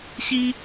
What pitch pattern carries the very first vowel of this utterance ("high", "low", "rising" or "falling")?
high